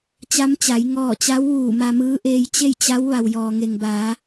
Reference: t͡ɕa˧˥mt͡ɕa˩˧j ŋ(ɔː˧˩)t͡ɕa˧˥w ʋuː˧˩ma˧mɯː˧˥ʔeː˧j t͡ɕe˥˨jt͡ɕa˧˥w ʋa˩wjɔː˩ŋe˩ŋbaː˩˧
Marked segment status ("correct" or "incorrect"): correct